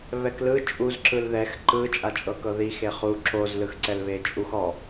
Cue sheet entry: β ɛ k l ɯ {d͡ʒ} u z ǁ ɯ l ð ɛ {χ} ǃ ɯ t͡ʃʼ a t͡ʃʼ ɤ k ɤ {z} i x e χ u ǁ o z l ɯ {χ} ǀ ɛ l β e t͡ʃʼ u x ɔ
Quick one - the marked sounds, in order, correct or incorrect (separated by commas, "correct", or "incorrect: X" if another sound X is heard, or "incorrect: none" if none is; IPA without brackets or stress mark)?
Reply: incorrect: t͡ʃʼ, incorrect: x, incorrect: ð, incorrect: x